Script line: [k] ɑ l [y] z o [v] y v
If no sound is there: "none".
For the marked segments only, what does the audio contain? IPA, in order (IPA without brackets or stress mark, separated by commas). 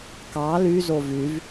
k, y, v